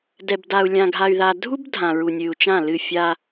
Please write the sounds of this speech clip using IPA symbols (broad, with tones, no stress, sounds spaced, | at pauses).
d ɛ˨ b d a˨ u̯ lʲ ã˨ ɡʱ a˨ y̯ ð a˨ dʱ u˦ b dʱ ã˨ ɹ u˨ nʲ ɨ˨ u̯ t͡ʃ ã˦˨ l ɨ˦˨ fʲ a˦